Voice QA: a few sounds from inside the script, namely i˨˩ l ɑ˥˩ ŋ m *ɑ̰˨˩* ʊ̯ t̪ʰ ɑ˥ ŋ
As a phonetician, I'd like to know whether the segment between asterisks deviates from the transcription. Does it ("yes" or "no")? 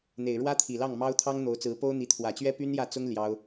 yes